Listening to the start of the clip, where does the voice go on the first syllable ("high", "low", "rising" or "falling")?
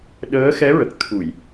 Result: rising